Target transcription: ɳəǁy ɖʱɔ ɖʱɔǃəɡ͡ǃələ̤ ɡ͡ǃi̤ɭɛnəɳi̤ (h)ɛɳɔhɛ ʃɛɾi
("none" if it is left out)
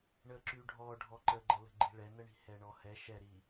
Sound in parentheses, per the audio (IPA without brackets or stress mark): h